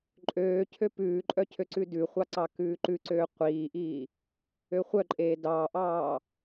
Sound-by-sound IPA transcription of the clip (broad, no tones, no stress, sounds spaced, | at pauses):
ǃʼ øː cʰ ø p ʉː ǃʼ œ cʰ ø ǀ ʉ d ʉ χʷ ɑ ǀ ɑ k ʉː ǃ ʉ ǀ øː qʷ iː ʔ iː | ø χʷ œ ǃʼ eː d ɑː ʔ ɑː